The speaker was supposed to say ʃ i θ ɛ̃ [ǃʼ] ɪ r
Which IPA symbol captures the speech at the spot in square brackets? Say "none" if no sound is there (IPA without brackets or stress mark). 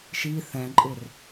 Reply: ǃʼ